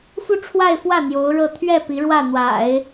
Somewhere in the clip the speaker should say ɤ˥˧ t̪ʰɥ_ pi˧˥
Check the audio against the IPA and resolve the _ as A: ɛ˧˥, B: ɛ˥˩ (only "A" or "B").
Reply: B